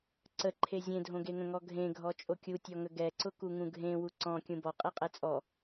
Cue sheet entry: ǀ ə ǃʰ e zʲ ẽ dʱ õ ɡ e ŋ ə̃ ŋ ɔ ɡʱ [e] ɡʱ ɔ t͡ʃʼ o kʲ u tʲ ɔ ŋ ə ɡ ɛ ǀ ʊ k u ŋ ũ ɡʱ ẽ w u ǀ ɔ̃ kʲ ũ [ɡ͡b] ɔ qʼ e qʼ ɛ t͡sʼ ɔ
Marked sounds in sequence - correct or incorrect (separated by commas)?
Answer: incorrect, incorrect